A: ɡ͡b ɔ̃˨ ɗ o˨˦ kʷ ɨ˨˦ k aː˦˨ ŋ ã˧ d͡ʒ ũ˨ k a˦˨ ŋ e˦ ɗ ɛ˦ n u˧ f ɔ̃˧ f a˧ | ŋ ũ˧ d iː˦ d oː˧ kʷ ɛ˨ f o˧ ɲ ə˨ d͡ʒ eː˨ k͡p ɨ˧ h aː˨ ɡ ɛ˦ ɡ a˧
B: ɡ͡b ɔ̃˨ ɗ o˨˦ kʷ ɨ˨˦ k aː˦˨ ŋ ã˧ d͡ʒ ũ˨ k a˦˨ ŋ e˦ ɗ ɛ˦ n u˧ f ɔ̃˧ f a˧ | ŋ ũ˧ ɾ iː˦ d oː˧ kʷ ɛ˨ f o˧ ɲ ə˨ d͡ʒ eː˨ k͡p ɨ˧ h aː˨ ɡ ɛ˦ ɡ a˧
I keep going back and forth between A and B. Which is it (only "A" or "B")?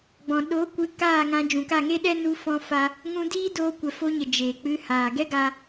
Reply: A